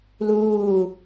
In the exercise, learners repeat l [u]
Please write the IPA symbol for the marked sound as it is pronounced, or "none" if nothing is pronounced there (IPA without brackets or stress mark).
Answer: uː